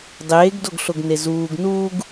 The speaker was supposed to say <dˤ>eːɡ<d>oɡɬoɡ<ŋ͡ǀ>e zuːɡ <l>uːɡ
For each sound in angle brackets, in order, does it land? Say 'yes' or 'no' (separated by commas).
yes, yes, no, no